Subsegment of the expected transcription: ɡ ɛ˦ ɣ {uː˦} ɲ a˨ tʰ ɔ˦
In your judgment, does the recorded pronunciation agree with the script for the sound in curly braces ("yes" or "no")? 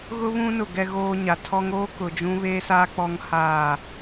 no